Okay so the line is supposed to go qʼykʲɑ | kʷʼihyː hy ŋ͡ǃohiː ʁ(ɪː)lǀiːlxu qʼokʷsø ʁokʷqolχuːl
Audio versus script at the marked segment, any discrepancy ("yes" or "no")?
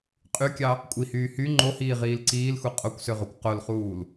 yes